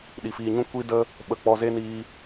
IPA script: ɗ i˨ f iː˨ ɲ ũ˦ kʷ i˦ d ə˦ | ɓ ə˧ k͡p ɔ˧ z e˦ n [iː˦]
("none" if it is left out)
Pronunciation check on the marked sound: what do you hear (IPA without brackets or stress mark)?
iː˧